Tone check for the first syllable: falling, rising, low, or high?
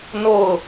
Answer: falling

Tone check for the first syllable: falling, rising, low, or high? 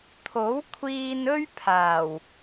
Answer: rising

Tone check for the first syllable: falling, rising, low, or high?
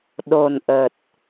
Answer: low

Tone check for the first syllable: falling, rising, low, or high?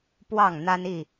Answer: falling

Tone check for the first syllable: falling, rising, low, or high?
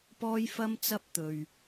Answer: high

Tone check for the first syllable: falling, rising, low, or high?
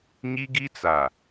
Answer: high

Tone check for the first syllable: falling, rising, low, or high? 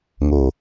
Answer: low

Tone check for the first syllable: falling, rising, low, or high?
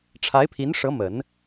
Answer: rising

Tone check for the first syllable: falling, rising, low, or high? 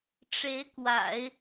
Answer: rising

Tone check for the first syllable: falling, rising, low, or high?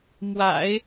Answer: low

